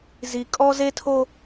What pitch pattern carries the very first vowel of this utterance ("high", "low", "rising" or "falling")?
high